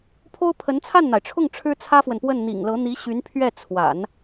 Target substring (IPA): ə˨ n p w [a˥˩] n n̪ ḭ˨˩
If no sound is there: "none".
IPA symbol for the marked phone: ə˥˩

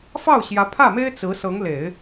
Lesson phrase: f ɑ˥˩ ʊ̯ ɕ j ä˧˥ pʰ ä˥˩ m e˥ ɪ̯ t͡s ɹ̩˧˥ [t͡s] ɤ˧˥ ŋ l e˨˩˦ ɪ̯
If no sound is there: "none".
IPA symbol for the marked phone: s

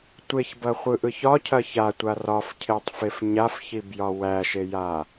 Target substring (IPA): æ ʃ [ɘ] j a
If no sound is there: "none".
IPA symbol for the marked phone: e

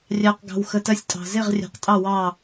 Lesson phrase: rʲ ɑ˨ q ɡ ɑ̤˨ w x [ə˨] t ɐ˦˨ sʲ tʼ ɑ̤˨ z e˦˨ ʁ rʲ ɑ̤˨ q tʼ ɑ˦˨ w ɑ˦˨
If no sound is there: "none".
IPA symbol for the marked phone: ə˨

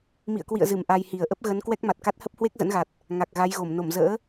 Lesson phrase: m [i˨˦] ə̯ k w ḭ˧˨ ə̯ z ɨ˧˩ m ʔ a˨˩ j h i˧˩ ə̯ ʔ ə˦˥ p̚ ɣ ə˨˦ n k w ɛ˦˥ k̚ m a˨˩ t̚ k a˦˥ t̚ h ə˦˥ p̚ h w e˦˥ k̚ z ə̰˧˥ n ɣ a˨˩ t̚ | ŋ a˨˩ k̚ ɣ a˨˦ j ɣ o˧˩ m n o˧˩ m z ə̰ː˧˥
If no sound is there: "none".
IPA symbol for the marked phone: ḭ˧˨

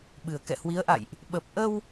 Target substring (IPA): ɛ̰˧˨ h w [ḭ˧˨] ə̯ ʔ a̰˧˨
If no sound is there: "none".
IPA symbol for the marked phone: i˨˦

